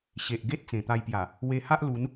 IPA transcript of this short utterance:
ɕ e˨ ʔ ɡ e˦ t̚ t͡s ẽ˨˩ t̪ a˧ j p j a˨˩ | w e˧ h a˦ ʔ l u˨˦ n

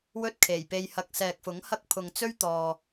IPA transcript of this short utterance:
w ɵ˥ t̚ kʰ e˨˩ j p e˧ j h ɐ˧ k̚ s ɛː˨ k̚ f ʊ˨˥ ŋ h ɐ˥ k̚ pʰ ʊ˨ ŋ t͡s ɵ˥ ɥ t̪ ɔː˨

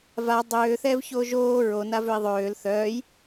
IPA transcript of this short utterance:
v a dˤ øː θ ɛː v ç oː ʒ oː ɹ o n a v ø i̯ ðˤ øː l θ œː j

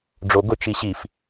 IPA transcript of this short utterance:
ɖ͡ʐ o ɡ ʊ t͡ʃ i ɕ i f

